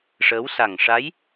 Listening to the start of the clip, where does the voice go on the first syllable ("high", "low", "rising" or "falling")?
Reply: rising